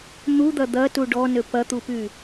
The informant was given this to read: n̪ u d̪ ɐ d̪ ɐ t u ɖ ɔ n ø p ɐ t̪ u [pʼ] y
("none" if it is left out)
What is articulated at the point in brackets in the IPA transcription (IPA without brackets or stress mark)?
p